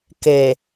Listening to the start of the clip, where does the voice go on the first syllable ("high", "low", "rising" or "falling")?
low